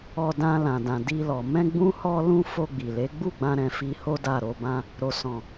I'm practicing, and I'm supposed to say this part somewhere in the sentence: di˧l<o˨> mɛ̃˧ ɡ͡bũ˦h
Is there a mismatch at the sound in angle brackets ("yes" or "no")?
yes